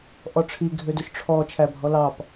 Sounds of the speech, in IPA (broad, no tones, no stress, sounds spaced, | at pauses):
ʔ ɔ ʈ͡ʂʰ i ɡʱ ø d ø ʃ ʈ͡ʂʰ ɔ t͡ʃʰ æ bʱ ɔ l ɑ p